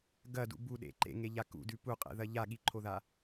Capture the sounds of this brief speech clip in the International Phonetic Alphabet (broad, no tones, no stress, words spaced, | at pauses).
ɡɐdṵ buɗḛ ǃḛŋeʎa kṵdʉ puqʼḛðɐ ʎaɠiǃʰoða